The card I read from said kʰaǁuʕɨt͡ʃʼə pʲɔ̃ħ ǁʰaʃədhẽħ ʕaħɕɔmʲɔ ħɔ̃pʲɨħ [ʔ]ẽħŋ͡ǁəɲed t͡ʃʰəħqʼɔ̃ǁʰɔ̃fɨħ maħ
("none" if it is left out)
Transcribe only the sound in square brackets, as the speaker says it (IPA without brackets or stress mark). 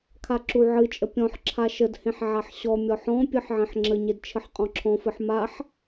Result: ʕ